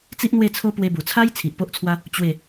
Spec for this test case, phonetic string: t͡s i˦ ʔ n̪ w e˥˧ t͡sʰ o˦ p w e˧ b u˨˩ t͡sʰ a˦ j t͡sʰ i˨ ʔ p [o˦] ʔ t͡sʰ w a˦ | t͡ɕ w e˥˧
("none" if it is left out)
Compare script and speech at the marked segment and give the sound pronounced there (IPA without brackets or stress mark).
o˦